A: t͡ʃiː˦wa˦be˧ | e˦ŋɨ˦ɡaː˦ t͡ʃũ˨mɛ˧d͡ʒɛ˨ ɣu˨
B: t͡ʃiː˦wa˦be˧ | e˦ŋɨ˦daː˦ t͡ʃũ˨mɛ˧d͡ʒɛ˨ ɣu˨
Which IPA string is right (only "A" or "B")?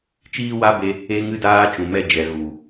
B